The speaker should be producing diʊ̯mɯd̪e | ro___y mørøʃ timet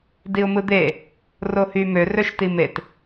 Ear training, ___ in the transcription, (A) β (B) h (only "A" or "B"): B